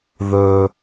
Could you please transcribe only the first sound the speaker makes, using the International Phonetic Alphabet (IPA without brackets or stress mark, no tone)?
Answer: ð